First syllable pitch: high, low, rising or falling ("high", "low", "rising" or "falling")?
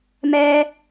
high